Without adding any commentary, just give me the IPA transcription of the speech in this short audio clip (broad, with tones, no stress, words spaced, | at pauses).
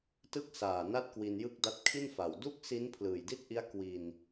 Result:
tɯ˥˩k̚ saː˨˩na˦˥t̚ kwi˧njɯ˥˩k̚da˦˥t̚ kʰi˥˩nfa˨˩w du˥˩k̚si˦˥n pʰlɯː˨˩jdi˥˩t̚ʔi˦˥a̯ kwi˧n